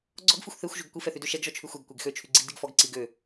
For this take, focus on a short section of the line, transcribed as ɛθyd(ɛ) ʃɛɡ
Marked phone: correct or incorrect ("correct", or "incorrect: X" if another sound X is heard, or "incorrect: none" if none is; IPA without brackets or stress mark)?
incorrect: ø